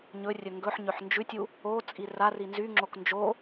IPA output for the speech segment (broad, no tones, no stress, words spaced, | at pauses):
ɲɵrʲɵ ŋɡɵħɲøħ nd͡ʒʉtʲu | ot͡sʼi rari nzyŋ͡ǁok nd͡ʒo